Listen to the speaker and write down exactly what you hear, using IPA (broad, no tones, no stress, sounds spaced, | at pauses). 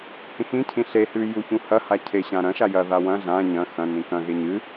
h ĩ x ĩ cʰ ĩ ɬ e h ʉ j u ç ũ h ɐ h a cʰ e ɕ ã ɾ ɐ̃ ʃ a j ɐ ð a w ɐ̃ ɮ ã ɲ ɐ̃ x ɐ̃ n ĩ k ɐ̃ ɣ e ɲ ɨ